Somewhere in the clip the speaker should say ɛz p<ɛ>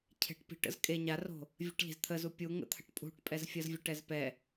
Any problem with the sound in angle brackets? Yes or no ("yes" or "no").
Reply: no